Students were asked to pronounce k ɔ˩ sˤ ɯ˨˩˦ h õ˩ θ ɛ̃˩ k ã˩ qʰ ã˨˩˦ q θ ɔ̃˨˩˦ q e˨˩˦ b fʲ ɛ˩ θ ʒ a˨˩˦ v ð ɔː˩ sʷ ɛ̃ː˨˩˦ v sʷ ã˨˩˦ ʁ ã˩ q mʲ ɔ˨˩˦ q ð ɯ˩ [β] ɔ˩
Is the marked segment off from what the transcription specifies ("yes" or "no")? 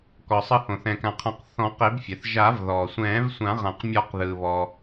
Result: no